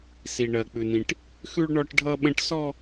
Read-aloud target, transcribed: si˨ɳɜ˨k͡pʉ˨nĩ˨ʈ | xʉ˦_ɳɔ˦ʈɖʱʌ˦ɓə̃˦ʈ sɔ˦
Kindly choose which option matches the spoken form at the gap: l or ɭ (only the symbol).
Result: ɭ